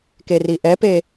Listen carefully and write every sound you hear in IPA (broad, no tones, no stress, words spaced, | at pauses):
keriʔɛpe